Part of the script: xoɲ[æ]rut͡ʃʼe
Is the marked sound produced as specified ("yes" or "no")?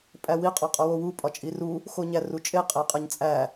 yes